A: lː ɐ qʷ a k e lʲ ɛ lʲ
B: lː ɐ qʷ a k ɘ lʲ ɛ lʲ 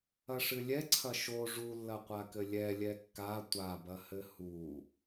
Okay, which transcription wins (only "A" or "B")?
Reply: B